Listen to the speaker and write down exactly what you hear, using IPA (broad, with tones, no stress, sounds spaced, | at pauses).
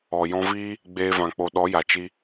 ɔ˨ j ɔ̃˧ v iː˦ | ɡ͡b eː˧ v ã˨ k͡p o˨ ɗ ɔ˨˦ j a˨ t͡ʃ i˧